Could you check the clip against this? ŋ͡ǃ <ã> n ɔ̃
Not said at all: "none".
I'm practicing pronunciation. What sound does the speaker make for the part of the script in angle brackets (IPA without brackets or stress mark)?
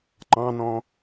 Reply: ɑ̃